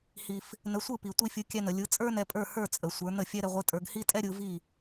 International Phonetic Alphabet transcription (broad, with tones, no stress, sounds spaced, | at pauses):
h i˩ f | n ə˩˥ sʷ ɯ˥˩ p i˩ tʷ i˧ fʲ ɯ˩˥ kʲ ɛ˧ n̪ ə˩ lʲ ɯ˩˥ t͡sʼ ə˞˥ n ɛ˧ pʼ ə˞˥˩ h ə˞˥˩ t͡sʼ ə˩ sʷ ə˞˩˥ n̪ ə˥˩ fʲ ɛ˥ ɾ ɛ˧ ʁʷ ɯ˧ tʼ ə˞˧ ɡ h i˥ tʼ ɛ˥ ɾʲ ɯ˧ v i˥˩